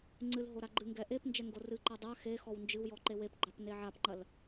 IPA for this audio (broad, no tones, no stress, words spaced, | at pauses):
ŋ͡ǀɨlɦo ɾaɡ͡ǃɨŋɡɛ ʔepnd͡ʒɛ ŋɡorɨǃa dˤa xe xɔwnd͡ʒɨwjɔ ǃewepɡ͡ǃap neʕapŋ͡ǃɐl